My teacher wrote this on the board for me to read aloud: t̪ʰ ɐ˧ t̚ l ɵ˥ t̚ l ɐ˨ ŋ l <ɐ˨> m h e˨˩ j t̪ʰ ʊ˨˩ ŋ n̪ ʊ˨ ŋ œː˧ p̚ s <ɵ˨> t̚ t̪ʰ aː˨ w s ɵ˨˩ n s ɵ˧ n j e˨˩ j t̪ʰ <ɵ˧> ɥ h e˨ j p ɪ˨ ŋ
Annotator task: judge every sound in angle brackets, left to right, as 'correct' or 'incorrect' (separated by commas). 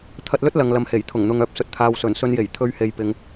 correct, correct, correct